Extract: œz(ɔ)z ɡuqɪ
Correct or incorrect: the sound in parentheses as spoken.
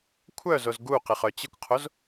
incorrect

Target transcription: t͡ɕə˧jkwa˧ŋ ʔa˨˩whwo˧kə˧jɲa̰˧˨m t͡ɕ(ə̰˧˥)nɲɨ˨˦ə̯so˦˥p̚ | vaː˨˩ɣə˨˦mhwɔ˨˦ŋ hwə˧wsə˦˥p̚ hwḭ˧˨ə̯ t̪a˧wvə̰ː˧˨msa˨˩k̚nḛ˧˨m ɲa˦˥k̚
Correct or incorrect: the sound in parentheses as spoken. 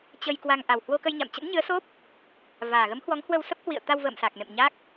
correct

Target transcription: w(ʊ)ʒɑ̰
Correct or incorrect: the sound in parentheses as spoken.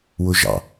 correct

